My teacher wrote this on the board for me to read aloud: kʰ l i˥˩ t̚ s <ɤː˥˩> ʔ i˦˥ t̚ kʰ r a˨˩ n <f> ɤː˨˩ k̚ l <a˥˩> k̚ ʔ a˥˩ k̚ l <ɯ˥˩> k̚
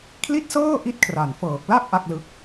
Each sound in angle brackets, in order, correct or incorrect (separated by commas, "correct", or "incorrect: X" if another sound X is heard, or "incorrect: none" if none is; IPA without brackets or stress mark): correct, correct, correct, incorrect: ɯ˦˥